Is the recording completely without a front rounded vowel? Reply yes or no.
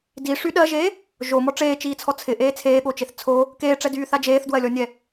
no